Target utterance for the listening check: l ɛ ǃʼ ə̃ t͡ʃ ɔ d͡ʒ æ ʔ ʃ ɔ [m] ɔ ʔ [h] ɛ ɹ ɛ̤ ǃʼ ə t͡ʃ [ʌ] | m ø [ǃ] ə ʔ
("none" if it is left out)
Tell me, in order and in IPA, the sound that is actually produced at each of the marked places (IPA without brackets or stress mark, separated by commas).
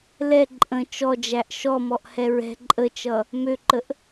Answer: m, h, ʌ, ǃ